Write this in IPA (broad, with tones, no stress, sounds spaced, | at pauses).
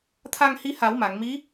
t̪ʰ a˧ ŋ h i˧˥ h a˨˩˦ w m a˨˩˨ ŋ m i˧˥